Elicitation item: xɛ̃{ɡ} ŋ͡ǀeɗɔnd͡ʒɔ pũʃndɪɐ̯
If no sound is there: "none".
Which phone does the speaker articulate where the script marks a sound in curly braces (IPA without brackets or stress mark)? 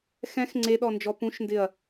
x